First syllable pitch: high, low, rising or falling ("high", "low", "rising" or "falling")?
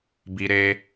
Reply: high